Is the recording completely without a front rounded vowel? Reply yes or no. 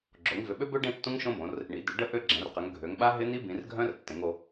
no